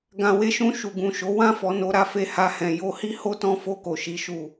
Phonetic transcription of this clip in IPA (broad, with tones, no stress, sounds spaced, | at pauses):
ɡ ã˨ w e˧ ʃ ũ˧ ʃ u˨ ɡ ũ˨ ʃ o˨˦ w ã˦˨ f ɔ˨ n o˧ ɾ a˧ f e˧ h a˧ h ɛ̃˨ j o˧ h i˦ h o˦ t ɔ̃˦ f o˧ k o˨ ʃ i˨˦ ʃ u˦˨